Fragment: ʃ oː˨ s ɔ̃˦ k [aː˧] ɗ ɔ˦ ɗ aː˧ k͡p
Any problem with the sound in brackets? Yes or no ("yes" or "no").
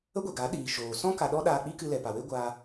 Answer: yes